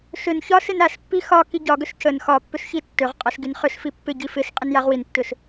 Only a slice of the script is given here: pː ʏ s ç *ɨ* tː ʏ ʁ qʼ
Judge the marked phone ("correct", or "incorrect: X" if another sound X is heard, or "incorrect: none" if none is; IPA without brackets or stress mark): incorrect: i